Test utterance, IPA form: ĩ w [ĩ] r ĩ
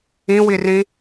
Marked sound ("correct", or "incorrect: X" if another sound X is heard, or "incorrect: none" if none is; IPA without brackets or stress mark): incorrect: i